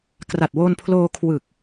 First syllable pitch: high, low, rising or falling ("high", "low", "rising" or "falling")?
low